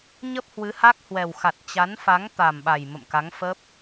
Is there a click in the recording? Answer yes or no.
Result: no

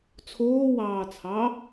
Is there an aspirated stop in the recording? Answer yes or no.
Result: yes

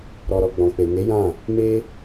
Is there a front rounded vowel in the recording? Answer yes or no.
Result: no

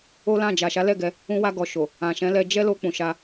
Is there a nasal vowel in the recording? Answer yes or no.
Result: yes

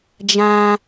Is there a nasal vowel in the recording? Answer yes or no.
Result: yes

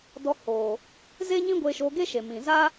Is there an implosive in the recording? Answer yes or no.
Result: no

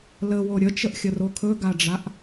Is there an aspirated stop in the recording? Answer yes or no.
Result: yes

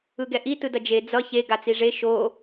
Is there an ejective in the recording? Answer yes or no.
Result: no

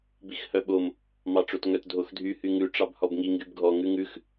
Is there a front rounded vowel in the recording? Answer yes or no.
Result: yes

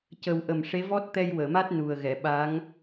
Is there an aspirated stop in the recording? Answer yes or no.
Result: no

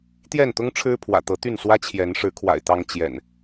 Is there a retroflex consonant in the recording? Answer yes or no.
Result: yes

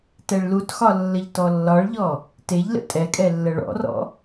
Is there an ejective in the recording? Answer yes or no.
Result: yes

